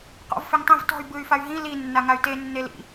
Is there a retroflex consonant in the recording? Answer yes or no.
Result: no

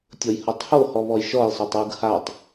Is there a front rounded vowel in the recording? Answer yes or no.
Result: no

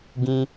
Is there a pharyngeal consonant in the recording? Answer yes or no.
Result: no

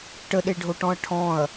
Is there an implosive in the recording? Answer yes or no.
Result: yes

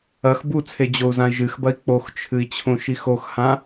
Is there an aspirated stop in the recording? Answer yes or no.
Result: yes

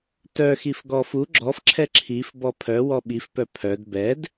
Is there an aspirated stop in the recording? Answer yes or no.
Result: yes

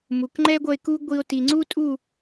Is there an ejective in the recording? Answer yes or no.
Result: yes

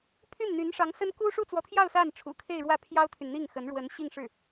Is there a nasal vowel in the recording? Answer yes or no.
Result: no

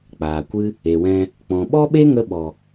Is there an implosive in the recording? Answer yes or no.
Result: yes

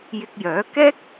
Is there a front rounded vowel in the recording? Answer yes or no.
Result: yes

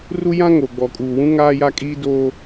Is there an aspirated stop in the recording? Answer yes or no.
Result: no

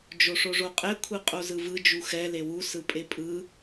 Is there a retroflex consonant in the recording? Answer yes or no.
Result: yes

